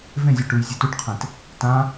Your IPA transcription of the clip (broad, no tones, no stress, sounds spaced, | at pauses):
v ẽ zʲ o ʈ u j zʲ e t u ʈ qʰ ẽ t | t ã